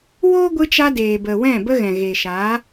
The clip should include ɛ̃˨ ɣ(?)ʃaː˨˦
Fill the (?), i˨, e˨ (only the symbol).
e˨